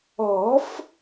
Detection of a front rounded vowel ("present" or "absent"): absent